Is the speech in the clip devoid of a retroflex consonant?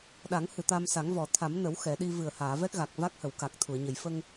yes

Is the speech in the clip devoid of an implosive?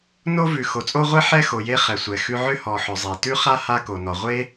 yes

